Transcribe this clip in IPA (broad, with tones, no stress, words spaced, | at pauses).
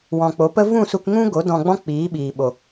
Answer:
wɔ̃˨k͡po˨˦pə˦ vũ˦˨su˧k ŋũ˦ɡo˨˦ dɔ̃˧ɡ͡bɔ̃˦k͡piː˨˦ɓiː˨ ɓo˨